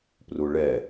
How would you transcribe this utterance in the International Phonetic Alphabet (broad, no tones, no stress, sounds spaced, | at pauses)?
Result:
p r u ɭ ɛ